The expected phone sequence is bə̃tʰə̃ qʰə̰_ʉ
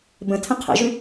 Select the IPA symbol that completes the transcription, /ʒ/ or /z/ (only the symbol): ʒ